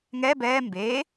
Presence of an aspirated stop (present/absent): absent